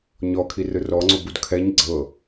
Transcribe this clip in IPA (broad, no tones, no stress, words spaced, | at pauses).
ɲɔkʰi rɯrɔŋ͡ǀobud kʰɛɲ ɡ͡ǀɤ